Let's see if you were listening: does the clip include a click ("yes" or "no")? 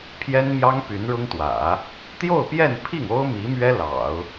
no